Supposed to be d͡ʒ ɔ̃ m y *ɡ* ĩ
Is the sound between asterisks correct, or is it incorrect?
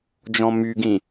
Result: correct